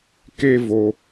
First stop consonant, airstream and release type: plain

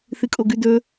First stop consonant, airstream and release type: ejective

